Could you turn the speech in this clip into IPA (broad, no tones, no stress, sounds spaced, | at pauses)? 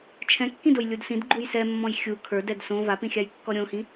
t͡ʃʰ ɛ̃ kː ĩ d o j lʲ u d s ĩ d ɡ͡ǃ u j s ɛ mː ɔ̃ j xʲ u kʰ ə˞ d ɛ d s õ v a p ĩ xʲ a j kː ɔ ɾʲ õ h ĩ